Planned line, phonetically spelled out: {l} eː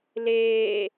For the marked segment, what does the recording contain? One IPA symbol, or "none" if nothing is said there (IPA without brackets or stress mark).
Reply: l